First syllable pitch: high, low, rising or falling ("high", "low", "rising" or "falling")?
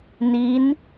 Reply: rising